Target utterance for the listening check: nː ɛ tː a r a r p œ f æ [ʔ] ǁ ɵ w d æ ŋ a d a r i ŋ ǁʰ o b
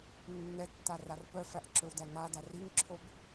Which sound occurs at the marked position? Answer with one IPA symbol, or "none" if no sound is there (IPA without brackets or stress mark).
ʔ